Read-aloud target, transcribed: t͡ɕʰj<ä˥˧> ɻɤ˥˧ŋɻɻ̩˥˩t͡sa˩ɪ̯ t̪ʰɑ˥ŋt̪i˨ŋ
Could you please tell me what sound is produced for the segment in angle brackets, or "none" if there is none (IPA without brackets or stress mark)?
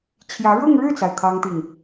ä˧˥